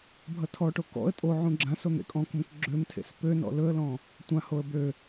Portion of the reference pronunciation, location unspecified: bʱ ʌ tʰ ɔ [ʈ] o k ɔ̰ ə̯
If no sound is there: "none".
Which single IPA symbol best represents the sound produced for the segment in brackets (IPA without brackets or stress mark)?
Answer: ʈ